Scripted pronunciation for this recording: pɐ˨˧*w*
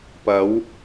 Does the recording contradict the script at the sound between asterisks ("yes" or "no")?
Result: no